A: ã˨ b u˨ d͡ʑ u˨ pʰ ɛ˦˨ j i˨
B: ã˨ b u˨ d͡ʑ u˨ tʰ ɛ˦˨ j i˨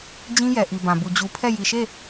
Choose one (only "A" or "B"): A